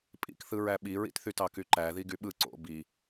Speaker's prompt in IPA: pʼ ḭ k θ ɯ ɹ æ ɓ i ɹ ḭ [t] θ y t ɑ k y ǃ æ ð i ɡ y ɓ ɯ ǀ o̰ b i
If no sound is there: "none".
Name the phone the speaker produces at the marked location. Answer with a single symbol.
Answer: t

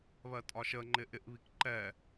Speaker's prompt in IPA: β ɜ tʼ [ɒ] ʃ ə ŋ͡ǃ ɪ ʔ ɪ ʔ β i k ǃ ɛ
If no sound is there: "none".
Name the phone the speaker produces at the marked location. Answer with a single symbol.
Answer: ɒ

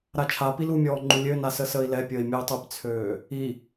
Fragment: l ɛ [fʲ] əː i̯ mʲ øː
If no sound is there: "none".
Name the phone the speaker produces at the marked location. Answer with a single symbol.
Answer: pʲ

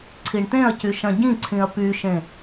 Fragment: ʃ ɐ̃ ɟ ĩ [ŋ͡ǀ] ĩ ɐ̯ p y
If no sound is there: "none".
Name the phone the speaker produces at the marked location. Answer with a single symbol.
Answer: ǀʰ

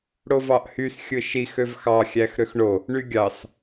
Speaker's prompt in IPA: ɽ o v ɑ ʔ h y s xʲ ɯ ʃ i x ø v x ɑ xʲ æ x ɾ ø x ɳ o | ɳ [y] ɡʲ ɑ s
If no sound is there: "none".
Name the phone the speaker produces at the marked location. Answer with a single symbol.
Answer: y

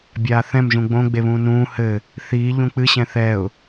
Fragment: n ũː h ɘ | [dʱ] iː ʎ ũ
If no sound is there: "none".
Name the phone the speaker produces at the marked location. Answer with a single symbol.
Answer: θ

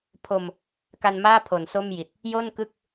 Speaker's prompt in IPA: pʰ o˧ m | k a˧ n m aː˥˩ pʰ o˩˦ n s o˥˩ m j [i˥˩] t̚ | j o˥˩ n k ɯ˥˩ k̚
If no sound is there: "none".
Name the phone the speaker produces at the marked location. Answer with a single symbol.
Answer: i˨˩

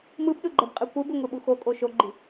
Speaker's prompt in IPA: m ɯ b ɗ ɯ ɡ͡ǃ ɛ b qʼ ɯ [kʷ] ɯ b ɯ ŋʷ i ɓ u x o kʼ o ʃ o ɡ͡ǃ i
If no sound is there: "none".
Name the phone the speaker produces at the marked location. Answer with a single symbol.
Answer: kʷ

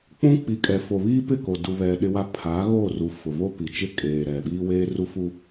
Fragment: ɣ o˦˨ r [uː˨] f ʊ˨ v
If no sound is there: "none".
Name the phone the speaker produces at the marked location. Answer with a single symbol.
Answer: u˨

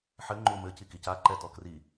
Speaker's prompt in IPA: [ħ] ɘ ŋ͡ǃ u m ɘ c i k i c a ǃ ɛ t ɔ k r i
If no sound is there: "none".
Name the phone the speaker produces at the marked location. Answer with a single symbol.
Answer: ħ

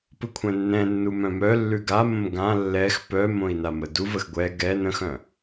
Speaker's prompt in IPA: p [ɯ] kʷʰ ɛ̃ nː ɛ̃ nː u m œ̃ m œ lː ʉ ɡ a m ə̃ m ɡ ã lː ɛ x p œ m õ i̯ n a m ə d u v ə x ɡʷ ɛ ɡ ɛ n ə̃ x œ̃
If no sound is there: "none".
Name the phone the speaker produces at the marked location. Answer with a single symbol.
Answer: ɯ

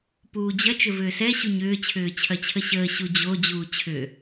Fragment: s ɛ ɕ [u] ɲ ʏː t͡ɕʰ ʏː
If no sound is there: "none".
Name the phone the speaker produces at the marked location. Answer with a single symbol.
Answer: u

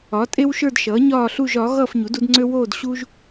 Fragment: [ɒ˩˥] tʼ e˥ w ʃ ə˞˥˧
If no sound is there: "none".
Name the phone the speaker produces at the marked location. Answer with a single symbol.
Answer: ɒ˩˥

